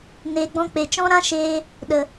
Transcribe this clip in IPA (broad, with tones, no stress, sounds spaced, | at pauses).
n eː˨ ɡ͡b ɔ̃˧ k͡p e˨ t͡ʃ ɔ̃˦ ɾ ã˦ ʃ eː˧ | ɗ ə˨